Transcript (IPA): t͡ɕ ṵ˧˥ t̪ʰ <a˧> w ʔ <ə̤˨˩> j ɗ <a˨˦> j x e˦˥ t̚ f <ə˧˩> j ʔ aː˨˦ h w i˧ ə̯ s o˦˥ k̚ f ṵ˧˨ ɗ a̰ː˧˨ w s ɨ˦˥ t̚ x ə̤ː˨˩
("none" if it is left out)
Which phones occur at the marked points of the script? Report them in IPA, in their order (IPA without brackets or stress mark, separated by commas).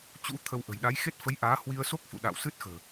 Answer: ə˧, ə̤˨˩, a˨˦, ə˨˦